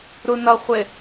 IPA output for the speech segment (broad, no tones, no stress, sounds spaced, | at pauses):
ɾ u n ʌ χʷ ɪ